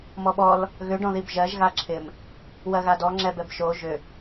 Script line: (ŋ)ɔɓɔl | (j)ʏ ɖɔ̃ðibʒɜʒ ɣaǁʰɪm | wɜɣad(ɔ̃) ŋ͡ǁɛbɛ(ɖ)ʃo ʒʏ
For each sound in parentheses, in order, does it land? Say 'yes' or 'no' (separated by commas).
no, no, no, no